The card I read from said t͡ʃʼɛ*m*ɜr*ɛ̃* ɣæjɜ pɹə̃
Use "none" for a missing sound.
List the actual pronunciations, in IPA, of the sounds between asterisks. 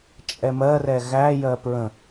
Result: m, ɛ

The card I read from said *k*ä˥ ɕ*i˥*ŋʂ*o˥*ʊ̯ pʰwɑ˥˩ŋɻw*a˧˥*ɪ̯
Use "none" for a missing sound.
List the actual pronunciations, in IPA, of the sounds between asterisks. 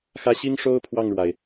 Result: x, i˥, o˥, a˩

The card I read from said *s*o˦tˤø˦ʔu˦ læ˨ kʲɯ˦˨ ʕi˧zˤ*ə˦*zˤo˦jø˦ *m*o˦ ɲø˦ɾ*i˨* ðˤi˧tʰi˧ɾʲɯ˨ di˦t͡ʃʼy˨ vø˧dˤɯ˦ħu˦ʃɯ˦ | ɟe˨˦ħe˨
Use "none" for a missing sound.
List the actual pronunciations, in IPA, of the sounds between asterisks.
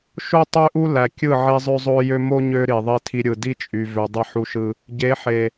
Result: ʃ, ø˦, m, i˨

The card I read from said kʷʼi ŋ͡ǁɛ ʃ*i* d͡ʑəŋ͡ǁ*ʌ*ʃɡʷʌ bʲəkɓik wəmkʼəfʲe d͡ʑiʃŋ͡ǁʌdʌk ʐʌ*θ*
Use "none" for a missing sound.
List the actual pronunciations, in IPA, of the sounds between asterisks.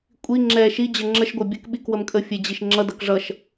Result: i, ə, ʃ

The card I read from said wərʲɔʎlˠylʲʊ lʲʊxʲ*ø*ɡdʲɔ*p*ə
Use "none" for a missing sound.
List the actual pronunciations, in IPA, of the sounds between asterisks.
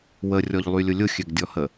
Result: ø, h

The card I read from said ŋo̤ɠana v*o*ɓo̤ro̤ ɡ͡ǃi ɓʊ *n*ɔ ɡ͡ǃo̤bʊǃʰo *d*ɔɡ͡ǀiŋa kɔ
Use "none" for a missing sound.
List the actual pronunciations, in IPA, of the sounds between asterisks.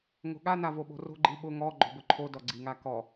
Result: o, ŋ, d

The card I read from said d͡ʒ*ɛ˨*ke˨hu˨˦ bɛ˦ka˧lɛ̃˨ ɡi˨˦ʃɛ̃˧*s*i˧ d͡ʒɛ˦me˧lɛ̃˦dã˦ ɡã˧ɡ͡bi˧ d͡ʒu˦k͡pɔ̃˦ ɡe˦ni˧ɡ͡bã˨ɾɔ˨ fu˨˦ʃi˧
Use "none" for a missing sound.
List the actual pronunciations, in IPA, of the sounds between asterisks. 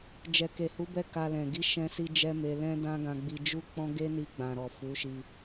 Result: ɛ˨, s

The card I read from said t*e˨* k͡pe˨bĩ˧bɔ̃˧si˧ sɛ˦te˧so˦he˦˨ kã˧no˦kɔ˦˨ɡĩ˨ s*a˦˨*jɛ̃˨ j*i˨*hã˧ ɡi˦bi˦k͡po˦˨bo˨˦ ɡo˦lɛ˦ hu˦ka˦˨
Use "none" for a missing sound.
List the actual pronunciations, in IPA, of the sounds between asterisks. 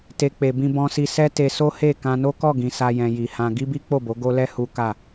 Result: e˨, a˧, i˨

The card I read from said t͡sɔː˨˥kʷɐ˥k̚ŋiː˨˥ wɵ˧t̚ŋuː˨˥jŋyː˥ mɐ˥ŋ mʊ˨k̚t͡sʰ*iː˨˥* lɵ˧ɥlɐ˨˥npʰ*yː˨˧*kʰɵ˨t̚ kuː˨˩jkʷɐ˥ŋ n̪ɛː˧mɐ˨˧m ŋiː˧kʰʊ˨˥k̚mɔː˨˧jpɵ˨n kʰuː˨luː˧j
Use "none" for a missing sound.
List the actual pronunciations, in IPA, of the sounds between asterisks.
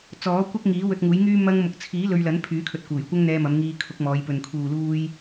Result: iː˨˥, yː˨˥

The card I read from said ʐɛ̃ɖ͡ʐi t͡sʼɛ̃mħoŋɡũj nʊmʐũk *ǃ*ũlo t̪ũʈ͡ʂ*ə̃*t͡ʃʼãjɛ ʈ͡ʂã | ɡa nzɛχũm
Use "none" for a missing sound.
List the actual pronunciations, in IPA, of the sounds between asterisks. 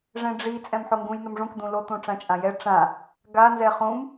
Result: d̪, ã

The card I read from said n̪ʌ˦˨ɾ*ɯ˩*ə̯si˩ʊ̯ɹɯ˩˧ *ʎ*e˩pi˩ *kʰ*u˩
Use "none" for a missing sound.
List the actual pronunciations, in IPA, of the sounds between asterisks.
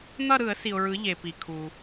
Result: ɯ˧˩˧, ʎ, kʰ

